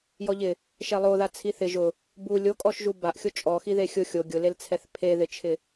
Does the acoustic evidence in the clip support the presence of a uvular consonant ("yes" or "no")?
no